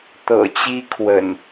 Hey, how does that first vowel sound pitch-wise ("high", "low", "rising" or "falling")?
low